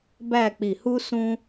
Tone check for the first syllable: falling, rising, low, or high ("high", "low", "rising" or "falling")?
falling